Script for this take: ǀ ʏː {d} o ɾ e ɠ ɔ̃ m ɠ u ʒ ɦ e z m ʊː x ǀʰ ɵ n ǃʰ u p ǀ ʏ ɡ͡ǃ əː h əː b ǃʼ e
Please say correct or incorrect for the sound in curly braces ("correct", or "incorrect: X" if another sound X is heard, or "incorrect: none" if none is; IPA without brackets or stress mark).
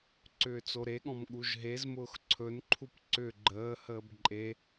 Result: incorrect: t͡s